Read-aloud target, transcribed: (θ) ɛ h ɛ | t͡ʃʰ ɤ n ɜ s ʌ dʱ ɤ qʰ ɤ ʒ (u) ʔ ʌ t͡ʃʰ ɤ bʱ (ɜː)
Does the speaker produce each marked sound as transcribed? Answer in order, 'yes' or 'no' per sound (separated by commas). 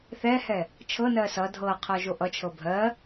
yes, no, no